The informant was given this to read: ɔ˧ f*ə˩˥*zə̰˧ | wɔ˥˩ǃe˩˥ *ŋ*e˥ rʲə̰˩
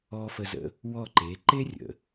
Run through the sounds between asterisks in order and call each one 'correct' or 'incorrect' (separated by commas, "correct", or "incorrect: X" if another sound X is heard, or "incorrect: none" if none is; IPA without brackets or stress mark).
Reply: incorrect: ə˧, incorrect: ǃ